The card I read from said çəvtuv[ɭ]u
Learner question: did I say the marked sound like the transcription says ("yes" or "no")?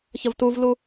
no